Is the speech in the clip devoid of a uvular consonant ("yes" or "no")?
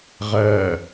no